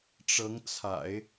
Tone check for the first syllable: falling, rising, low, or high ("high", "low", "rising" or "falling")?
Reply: rising